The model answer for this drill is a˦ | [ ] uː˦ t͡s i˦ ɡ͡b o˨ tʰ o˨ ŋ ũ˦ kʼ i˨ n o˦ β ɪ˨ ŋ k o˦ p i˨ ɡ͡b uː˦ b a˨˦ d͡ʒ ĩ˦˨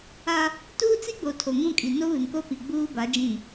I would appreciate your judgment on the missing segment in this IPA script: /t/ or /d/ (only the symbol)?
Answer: t